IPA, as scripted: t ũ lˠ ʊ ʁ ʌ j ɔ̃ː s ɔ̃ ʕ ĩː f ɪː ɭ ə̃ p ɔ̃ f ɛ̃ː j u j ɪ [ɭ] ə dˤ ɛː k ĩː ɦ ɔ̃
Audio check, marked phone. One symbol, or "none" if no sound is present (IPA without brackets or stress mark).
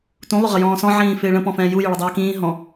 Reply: ɭ